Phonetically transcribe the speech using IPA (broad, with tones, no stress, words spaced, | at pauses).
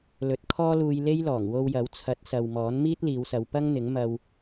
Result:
lɵ˨˥t̚kʰɔː˥luː˧j le˥jlɔː˨˩ŋ wo˧wjɐ˨˥wt͡sʰɐ˨˥t̚sɐ˨w mɔː˨˥nmiː˥t̚liː˨˧wsɐ˨˧w pɐ˥ŋn̪ɪ˨˥ŋ mɐ˧w